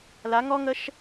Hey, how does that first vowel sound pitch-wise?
rising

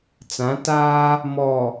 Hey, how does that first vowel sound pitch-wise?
rising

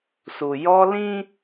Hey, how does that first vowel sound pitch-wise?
low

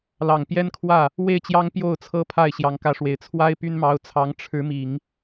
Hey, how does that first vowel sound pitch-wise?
low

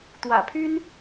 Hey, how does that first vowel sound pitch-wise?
low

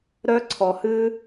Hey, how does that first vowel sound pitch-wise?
high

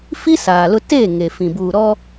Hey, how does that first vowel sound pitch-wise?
high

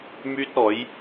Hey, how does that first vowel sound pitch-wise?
high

